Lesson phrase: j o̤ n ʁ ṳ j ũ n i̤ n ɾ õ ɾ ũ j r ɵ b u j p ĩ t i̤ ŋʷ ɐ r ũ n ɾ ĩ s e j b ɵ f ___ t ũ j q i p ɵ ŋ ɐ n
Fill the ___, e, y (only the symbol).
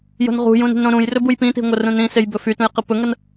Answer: y